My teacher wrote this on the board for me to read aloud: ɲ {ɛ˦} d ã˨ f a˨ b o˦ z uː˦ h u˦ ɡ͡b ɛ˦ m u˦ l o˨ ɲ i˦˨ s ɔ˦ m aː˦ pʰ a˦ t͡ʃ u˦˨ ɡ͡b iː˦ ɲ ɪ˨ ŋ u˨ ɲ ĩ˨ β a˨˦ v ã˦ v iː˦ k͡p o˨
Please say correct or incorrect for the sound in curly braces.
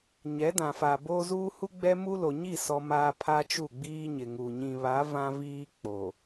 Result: incorrect